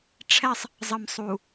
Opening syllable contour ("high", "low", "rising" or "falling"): high